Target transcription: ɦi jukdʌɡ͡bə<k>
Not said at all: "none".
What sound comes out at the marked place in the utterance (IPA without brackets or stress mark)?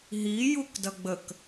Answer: k